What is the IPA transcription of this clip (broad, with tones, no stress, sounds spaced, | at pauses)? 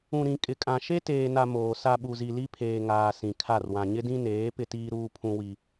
ũ˨ ɾ ĩ˨ kʼ ɪ˨ kʼ ã˨ ʃ e˦ t eː˨ n a˨ m oː˨ s a˨ ɓ u˨ z i˨ l i˦ pʰ eː˨ ŋ aː˨ s ĩ˨ kʰ a˦˨ r w ã˨ ɲ ɪ˦ d ĩ˦ n eː˨˦ p ɪ˦ t iː˦ ɾ uː˦ pʰ ũ˦ w i˦